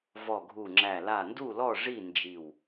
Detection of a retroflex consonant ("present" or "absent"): present